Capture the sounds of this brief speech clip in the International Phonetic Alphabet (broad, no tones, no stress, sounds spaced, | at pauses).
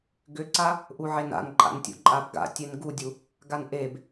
ɡ ʏ ǀ a | ʔ u ʕ e n a̰ n ǃʼ a̰ n tʲ ṵ ǃʼ a b ɡ a̰ tʲ e n ɡ u dʲ u | ɡ a n ʔ e b